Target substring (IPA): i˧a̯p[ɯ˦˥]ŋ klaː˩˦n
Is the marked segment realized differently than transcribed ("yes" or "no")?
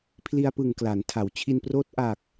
yes